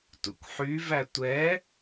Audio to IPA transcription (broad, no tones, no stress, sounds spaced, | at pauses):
t ṵ kʷ ħ y v æ tʷ ɛ